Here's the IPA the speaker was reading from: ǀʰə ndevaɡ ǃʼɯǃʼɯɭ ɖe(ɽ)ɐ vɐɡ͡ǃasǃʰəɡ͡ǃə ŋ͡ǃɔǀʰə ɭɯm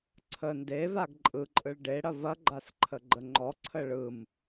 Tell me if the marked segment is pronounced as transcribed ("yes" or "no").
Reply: yes